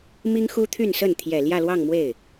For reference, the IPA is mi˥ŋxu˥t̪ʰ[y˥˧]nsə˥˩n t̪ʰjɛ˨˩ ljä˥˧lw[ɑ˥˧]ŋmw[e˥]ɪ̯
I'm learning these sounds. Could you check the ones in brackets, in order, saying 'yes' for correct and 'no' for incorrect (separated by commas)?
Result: yes, yes, no